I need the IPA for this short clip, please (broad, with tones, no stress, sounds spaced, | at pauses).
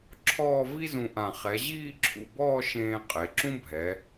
ǁʰ ɔː˥˧ v i˥ z ũ˧ ʔ ã˧˩ χ ɛ˩˧ ʑ iː˥˧ ǁʰ ṵ˧˩ b ɔː˥˧ ʃ ẽː˧ qʼ e˩˧ ǁ ũ˥ bʱ ɛ˩˧